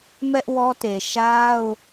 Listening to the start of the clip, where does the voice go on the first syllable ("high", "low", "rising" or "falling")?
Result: high